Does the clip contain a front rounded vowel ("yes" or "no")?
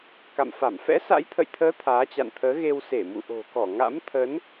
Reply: no